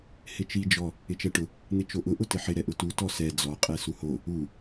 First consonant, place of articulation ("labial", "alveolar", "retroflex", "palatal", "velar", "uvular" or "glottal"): glottal